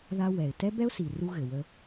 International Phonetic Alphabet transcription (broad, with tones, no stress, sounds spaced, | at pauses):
ð a˦ w ɛ˨ ɪ̯ t ɛ˦ b ɛ˦ ʊ̯ s i˨ r u˦ ɣ ɘ˨ w ə˦